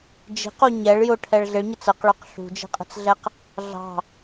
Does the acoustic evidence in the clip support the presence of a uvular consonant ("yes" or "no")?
yes